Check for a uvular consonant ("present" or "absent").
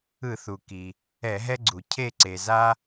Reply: absent